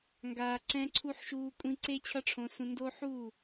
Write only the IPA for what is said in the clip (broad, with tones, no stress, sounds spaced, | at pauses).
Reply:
ŋ ɡ aː˨ ǀ ɛ̃˧ ǀʰ u˧ ħ ʃ uː˧ kʷʼ ĩ˧ ǀ e˦ t͡ɕʰ ʌ˦ ʈ͡ʂʰ õ˧ s ũ˧ n d o˧ ħ u˦˨